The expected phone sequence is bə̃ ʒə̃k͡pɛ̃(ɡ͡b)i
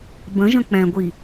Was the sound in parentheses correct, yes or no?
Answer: no